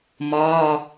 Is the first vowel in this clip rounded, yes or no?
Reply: yes